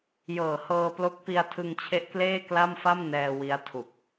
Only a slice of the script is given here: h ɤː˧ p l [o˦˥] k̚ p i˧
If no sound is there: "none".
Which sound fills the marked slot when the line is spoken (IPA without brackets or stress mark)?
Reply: o˦˥